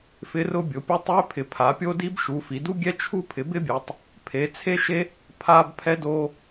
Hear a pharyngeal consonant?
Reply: no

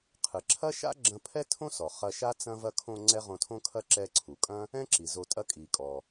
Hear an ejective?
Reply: yes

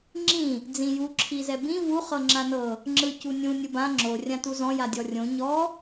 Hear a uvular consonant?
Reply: yes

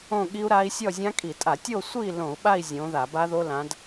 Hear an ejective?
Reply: yes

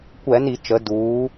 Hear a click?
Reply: no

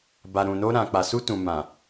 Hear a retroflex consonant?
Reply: no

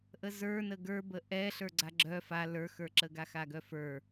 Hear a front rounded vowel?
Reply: yes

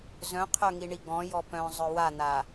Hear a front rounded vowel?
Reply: yes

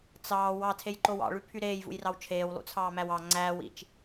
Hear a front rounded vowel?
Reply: yes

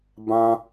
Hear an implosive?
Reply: no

